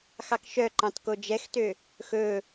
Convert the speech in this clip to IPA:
x ɑ k ʃ œ ǃ ɑ̃ t k o d͡ʒ ɛ x t ø | x ɵ

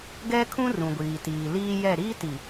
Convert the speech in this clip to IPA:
ɡ ɛ˦ kʰ ũ˦ r ũ˨ ɡʷ iː˨ t iː˨ l iː˦ j ɛ˦˨ ɾ iː˦ t i˨

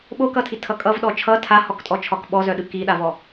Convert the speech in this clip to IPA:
ɓ o k ʌ tʰ i tʰ ʌ kʼ ʌ v ɗ ɔ t͡ʃʰ ʌ tʰ a h ɔ k tʼ ɔ t͡ʃʰ ɒ k ɓ ɔ z œ ɗ ɯ k i ɗ a v ɔ

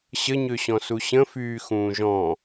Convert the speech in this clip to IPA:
ɕ ə ɲ ø ɕ ɔ̃ s u ɕ ə̃ f yː x ũː ʒ ɔ̃

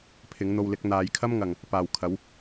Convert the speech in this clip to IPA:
pʰ ɪ˨˥ ŋ n̪ o˧ w l ɪ˨˥ k̚ n̪ aː˨˧ j kʰ ɐ˥ m ŋ ɐ˨ ŋ | p aː˨ w kʰ ɐ˨˥ w

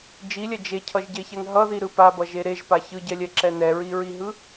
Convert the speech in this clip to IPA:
d͡ʒ i lʲ ɛ d͡ʒ e cʰ ʌ ʒ ɟ e ç ɛ ŋ ɦ ʌ ð i ɾ ɯ p a b ʌ ʒ e ɾ e ʒ p a ç ɯ ɟ ɛ lʲ ɛ ǁ ɛ n ɛ ɹ i ɹ i ɦ ɯ

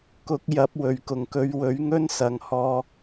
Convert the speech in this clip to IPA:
k ʊ˨˥ k̚ j ɐ˨˥ p̚ w ɵ˨˩ ɥ k ʊ˨˩ ŋ k ɵ˨˧ ɥ w ɵ˨˥ ɥ ŋ ɵ˥ n s ɐ˨˩ ŋ h ɔː˧

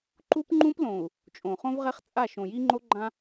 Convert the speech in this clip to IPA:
ǃ u˦ p ŋ͡ǃ ũ˦ p l õ˨ u̯ | t͡ʃʼ õ˨ χ õ˦ v ʁ ɛ˦ χ t͡sʼ a˦˨ ʃ õ˨ j i˦ ŋ͡ǃ o˦ ɡ͡ǃ ã˦

